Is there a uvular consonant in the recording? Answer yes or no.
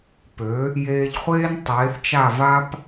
yes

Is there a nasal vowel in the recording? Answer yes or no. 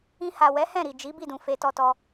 yes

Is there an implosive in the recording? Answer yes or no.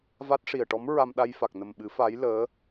yes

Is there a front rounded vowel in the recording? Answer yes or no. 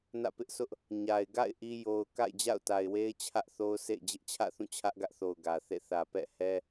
no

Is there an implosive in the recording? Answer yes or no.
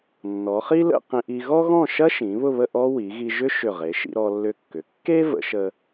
no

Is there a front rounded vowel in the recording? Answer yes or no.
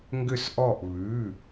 yes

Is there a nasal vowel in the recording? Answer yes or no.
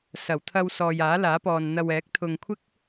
no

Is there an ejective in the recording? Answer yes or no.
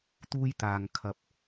no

